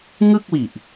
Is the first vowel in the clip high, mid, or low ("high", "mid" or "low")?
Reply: high